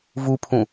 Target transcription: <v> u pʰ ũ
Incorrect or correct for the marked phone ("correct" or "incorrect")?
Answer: correct